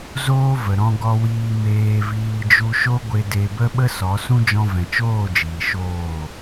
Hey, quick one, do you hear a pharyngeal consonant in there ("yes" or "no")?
no